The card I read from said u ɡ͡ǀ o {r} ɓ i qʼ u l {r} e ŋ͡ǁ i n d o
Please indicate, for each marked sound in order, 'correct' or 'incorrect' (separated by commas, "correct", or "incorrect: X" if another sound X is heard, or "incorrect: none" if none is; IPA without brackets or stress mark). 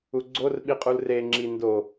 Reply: correct, correct